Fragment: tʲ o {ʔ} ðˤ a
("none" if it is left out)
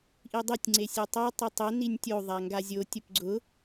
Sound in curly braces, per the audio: none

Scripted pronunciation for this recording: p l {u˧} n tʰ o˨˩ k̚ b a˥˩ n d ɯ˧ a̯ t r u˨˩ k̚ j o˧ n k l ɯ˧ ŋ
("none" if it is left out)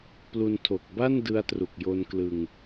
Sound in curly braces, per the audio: u˧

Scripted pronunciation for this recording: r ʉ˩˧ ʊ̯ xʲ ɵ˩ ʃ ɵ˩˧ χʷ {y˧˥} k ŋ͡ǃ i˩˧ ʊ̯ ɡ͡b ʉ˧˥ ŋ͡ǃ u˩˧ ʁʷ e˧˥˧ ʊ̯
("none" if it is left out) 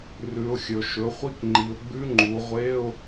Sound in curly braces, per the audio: i˧˥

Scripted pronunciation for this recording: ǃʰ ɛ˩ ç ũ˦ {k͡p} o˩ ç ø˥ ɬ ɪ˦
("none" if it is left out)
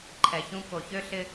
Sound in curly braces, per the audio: k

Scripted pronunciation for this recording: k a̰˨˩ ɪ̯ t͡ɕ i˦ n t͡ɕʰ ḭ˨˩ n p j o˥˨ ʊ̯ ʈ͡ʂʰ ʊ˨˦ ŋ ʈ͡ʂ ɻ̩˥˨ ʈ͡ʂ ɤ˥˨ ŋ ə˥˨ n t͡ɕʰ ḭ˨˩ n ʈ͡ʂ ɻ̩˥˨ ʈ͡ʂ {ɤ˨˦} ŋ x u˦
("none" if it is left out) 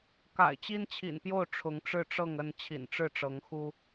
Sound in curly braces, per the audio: ɤ˨˦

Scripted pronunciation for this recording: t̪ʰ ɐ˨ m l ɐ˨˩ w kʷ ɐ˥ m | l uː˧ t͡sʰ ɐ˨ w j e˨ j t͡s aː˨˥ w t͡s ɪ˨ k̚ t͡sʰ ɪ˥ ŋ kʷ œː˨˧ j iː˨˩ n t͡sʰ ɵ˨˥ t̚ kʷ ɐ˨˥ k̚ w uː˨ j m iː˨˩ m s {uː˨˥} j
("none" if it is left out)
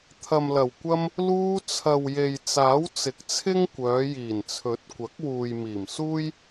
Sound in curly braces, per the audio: uː˥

